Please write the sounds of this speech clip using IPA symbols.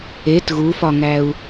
et ɣufɒŋæu̯

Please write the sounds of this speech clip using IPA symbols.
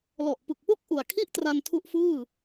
lɔ˨˩ʔpɯ˨˩k̚po˦˥k̚ ʔu˨˩a̯kʰi˥˩ʔ tra˧ntʰu˦˥ʔfɯː˥˩

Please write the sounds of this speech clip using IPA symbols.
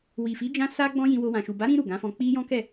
wi˨fi˨˦ d͡ʒã˧ sa˧ ɡ͡bɔ̃˦jĩ˧wo˧ wã˨ʃu˨ ba˨˦ɾĩ˧ ɾu˨ɡã˨˦fɔ̃˧ k͡pi˦ jɔ̃˦kɛ˦˨

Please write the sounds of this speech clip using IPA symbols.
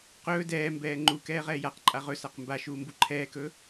qɵː dɛːmbɛː ŋ͡ǃukɛː ʁɛːjaqǃʼa ʁɵsaq mbaʃuː mbuǃʰɛːkɵː

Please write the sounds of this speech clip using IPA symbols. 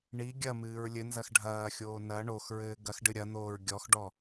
ɳi ɡʲɐmɨːɹ lʲɘnzɐx ɖʱɐːxʲoː nɐ ɳoxɹɘː ɡɐxɖɨ ɾʲɐn̪oːɹ ɡʲɔxɖɔ

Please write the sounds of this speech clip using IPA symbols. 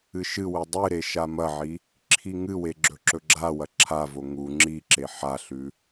ɨʃɨwɨ dˤɨɾe ʃamɐʕi | ǁʰiŋɨwe ɡ͡ǁɵǁɵɡ͡ǁawɐ ǁʰavo ŋu ŋ͡ǁiǁe ħaɬʉ

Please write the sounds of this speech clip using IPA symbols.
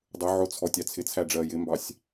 dˤʊʕʊ t͡sʰɔtʲɑt͡sʰɪt͡sʰæ ɖ͡ʐɜjɪmbɑsʲ

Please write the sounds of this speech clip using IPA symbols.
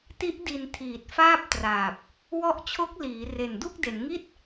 ti˦˥ʔdi˨˩n tʰiː˨˩t̚faː˥˩p̚traː˨˩p̚ | wɔ˦˥ʔt͡ɕʰo˦˥k̚liː˩˦ re˨˩ndu˥˩k̚de˩˦nŋi˥˩t̚

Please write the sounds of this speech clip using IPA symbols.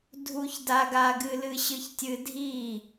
dʱu˧çda˧ɡa˧ ɡɨ˧lɨ˧ɕɨ˧ç tʲɨ˧dʱi˥˩

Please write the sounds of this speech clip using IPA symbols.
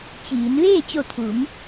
t͡ɕiː˩˧n ʋeː˥˨t͡ɕo˧˩ t̪ʰu˩˧m

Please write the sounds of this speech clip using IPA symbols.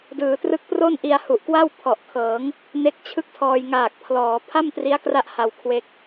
dɯː˩˦trɯ˦˥k̚ pro˥˩nʔi˧a̯hu˨˩ʔkwa˥˩w pʰɔ˨˩ʔkʰɤː˩˦ŋ | ne˦˥k̚t͡ɕʰɯ˥˩k̚tʰɔː˧j ŋaː˨˩k̚pʰlɔː˩˦ pʰa˥˩mtri˦˥a̯kra˦˥ʔ ha˧wkʰwe˦˥k̚

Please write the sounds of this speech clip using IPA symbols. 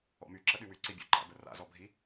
ɔ̰my ǁəɗywy ǀibʲo̰ ǃa̰bəra̰ zɔbʱi

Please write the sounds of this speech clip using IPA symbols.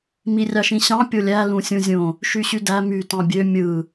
mirʲɑʃĩɕɑ̃ pʲolʲæ lũsʲũzʲõ | ʃyɕydæ my tɑ̃bʲø mʲɯ

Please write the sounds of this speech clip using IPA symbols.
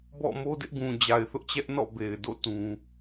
bɔ̰˦˨mo˦dɪ˦ʔ ɡũ˨d͡ʑa˨ɪ̯θʊ˦ʔt͡ɕɛ˦ʔ nɔ̰˦˨be˨ɪ̯do̰˦˨ tũ˦

